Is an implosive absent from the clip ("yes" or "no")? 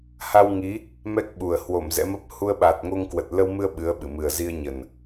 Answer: no